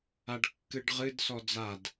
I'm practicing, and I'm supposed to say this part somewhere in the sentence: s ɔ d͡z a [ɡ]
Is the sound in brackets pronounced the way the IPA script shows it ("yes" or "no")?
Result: no